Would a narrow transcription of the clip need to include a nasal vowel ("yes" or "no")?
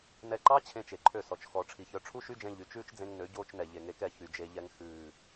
yes